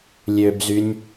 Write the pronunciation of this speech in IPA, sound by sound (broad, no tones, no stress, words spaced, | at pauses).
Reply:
lʲøbzynʲ